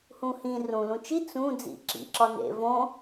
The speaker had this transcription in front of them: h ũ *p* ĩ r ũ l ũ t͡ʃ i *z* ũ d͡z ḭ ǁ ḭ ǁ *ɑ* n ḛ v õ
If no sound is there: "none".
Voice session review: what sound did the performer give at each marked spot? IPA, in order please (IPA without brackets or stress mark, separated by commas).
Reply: h, t͡s, ɒ